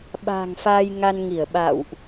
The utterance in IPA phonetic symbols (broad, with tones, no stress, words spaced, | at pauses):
ɓa̤ː˨˩ŋfaː˧jŋa˧nŋi˧˩ə̯ ɓa̰˧˨wʔ